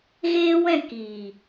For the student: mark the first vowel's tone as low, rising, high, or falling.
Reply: high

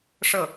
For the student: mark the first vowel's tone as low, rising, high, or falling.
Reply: falling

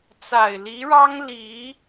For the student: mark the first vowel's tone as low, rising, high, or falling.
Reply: low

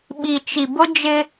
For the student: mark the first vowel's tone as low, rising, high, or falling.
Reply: low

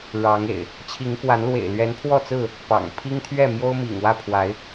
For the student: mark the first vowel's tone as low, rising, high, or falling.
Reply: rising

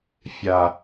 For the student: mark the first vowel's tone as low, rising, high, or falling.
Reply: low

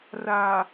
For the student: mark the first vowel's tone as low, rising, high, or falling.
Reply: low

